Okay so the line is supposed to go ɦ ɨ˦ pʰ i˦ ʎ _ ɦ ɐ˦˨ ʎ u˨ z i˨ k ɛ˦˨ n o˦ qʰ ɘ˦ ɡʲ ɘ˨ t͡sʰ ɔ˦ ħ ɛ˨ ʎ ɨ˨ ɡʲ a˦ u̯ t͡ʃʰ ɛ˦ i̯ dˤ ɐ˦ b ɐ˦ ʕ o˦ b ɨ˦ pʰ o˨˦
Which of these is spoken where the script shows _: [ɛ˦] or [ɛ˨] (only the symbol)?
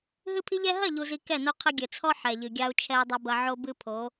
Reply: ɛ˦